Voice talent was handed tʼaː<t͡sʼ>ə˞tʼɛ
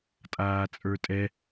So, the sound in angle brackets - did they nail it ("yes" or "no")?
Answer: yes